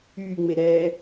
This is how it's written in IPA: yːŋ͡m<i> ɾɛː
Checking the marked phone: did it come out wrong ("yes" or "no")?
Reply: yes